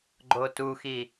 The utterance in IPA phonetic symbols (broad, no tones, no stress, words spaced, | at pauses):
ɡ͡ǃotuxi